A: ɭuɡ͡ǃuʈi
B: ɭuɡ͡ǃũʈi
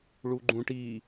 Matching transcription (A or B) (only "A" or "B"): B